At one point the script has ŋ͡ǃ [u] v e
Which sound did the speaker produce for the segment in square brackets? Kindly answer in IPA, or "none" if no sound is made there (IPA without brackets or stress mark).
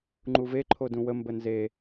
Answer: u